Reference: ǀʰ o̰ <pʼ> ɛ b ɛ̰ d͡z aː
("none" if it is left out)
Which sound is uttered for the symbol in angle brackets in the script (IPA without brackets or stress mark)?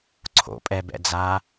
pʼ